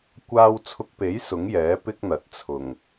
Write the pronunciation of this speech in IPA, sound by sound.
kʷ aː˥ w t͡sʰ ʊ˧ k̚ p e˨˥ j s ʊ˨˥ ŋ j ɛː˨˥ p ɪ˥ k̚ n̪ ɐ˨˥ t̚ t͡sʰ ʊ˨˩ ŋ

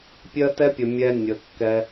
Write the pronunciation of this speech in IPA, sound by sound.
pʲ ɜ˧ t ɛ˧ pʲ ə˨ mʲ ɛ˧ nʲ ə˨ kː ɛ˧

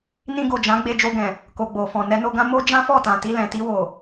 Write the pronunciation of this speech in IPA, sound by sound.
n ĩ˧ ɡ o˨ d͡ʒ ã˨˦ ɡ͡b e˧ d͡ʒ o˧ ɡ ɛ̃˨ | k o˨ ɡ͡b o˨ f ɔ̃˨ n ɛ˧ n o˧ ɡ ã˦ m o˦ d͡ʒ ã˦ f ɔ˦˨ t ã˨ t i˧ l ɛ̃˨ t i˧ w o˨

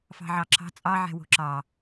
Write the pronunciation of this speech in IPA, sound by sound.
f ɑ̤ ʕ ɑ ǁʰ ɑ̤ t͡sʼ ɑ ʕ ɛ̤ w o̤ ǁ ɑ

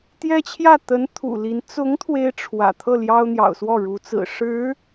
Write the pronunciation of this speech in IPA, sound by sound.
t̪ j ɛ˥ t͡ɕʰ j ä˥˩ t̪ ə˧˥ n t̪ʰ ṵ˨˩ l i˧˥ n t͡s ʊ˧˥ ŋ t̪ʰ w e˥ ɪ̯ ʈ͡ʂʰ w ä̰˨˩ t̪ʰ ɤ˥˩ l j ɑ˥ ʊ̯ n̪ j ɑ̰˨˩ ʊ̯ s w ɔ˥˩ ɻ u˧˥ t͡s ɹ̩˨˩ ʂ ɻ̩˧˥

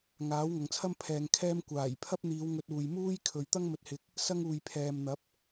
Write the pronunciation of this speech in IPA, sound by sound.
ŋ aː˨˥ w ŋ ɐ˨ ŋ t͡sʰ ɐ˥ m pʰ ɛː˧ ŋ kʰ ɛː˥ m kʷ aː˨˩ j pʰ ɐ˥ p̚ n̪ iː˨˧ w ŋ ɵ˧ t̚ uː˨ j m uː˥ j kʰ ɵ˨ ɥ t̪ ɐ˥ ŋ m ɵ˨˥ t̚ h ɪ˨ k̚ | s ɐ˥ ŋ uː˨ j pʰ ɛː˨ m n̪ ɐ˨˥ p̚

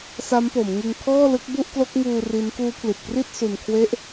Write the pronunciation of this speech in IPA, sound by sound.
s a˦˥ m p o˩˦ m ŋ ɯ˧ ŋ kʰ ɔː˥˩ l ɯ˦˥ k̚ b u˥˩ ʔ k l o˦˥ k̚ ŋ uː˧ r i˦˥ n k uː˦˥ pʰ l i˨˩ t̚ k r i˥˩ t̚ s u˧ n kʰ w e˥˩ ʔ

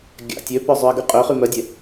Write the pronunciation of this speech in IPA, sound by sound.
ɡʲ a̰ tʲ ø p ø zˤ y ə̯ ɡ y qʼ ø χ y m œ dʲ e

